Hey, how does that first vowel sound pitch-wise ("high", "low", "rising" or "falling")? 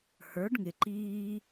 rising